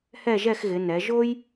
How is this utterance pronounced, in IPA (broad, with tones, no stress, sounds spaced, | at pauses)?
h ɛ˥˧ ʒ ɛ˥˧ x ɣ ɪ˩˧ n ɛ˩˧ ʒ o˥ j